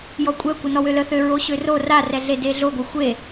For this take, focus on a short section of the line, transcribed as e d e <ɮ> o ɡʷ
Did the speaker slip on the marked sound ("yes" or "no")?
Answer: no